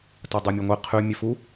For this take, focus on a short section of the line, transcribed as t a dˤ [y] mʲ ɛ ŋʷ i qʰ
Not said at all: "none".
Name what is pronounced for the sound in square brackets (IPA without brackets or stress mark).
u